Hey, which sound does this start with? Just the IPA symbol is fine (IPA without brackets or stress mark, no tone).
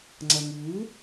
ŋ͡ǀ